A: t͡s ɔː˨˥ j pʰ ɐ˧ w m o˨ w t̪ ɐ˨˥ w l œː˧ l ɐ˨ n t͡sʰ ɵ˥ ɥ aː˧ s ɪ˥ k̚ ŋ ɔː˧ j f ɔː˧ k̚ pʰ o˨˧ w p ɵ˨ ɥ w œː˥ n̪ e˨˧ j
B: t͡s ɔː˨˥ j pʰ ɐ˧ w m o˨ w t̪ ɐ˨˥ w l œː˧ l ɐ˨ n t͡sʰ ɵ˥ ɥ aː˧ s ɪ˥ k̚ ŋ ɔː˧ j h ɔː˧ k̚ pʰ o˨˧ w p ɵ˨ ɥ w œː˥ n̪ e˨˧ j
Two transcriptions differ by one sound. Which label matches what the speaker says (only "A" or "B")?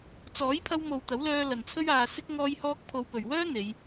B